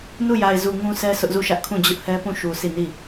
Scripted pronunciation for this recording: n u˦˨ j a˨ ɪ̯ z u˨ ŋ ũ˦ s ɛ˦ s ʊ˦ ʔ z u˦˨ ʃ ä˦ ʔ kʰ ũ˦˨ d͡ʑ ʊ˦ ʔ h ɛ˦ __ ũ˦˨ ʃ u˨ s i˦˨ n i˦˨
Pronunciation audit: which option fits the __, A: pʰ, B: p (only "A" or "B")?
B